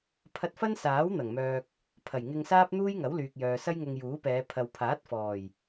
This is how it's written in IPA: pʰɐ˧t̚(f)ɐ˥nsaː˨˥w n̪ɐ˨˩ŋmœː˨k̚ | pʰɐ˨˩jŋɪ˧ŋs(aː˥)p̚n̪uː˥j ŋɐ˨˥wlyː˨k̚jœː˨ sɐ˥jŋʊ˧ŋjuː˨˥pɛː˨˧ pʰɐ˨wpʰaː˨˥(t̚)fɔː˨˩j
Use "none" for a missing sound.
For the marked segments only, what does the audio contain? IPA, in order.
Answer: f, aː˥, t̚

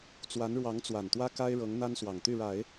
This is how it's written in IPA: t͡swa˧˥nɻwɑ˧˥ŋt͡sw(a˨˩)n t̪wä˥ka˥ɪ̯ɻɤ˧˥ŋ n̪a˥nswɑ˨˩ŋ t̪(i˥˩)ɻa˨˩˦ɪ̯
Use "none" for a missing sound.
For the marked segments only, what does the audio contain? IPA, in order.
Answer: a˨˩, y˥˩

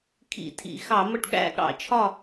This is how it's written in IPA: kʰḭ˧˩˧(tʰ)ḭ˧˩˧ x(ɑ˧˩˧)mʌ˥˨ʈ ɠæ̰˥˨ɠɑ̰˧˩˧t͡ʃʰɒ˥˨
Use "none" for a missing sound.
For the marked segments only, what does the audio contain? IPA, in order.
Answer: tʰ, ɑ˧˩˧

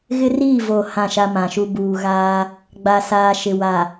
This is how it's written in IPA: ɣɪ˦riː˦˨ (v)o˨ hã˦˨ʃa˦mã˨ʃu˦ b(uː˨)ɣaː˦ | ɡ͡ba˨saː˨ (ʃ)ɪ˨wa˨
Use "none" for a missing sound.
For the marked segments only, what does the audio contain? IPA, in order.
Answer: v, uː˨, ʃ

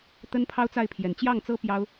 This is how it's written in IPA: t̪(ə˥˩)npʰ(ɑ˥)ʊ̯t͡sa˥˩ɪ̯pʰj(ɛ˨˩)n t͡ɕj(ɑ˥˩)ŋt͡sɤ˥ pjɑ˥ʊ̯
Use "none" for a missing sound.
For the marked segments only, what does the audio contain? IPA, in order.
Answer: ə˥, ɑ˥, ɛ˨˩, ɑ˥˩

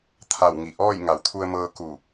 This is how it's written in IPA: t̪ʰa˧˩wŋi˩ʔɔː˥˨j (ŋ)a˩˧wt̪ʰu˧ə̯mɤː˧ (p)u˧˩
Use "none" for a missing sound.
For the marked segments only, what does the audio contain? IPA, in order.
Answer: ŋ, k

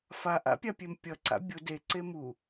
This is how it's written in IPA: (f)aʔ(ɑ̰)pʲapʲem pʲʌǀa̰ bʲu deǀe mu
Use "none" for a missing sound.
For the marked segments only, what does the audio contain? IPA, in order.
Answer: f, a̰

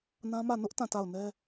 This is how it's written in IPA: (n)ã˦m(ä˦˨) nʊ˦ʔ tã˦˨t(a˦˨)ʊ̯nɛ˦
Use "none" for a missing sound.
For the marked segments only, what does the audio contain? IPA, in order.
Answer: n, ä˦˨, a˦˨

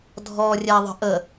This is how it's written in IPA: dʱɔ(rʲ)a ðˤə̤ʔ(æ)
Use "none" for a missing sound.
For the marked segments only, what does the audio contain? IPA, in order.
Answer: rʲ, ə

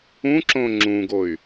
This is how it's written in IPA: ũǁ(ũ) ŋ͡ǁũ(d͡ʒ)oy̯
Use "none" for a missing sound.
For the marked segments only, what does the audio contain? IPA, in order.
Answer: õ, ɡ

